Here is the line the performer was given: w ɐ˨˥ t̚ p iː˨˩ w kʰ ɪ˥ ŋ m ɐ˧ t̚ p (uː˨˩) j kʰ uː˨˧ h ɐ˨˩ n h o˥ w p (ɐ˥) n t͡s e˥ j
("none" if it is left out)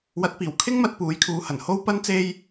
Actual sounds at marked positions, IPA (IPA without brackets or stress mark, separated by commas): uː˨˥, ɐ˥